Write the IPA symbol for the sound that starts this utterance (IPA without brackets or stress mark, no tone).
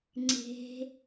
ŋ͡ǀ